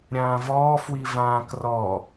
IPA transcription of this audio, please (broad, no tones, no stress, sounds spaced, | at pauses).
ɾʲ ãː v ɔː f w i v ãː k r ɔ